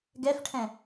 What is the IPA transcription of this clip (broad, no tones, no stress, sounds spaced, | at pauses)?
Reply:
ɡ ɛ f ʈʰ ɛ̃